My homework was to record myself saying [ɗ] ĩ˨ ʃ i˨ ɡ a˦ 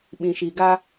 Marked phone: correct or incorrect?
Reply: incorrect